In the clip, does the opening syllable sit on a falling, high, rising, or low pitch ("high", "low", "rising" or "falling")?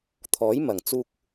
rising